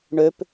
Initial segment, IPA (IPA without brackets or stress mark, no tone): ɳ